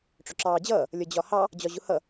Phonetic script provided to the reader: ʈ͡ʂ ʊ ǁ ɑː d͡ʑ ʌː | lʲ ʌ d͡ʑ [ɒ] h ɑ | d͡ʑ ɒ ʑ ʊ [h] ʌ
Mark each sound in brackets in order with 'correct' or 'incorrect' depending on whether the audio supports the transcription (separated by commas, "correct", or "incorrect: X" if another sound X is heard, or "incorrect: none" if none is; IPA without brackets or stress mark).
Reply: correct, correct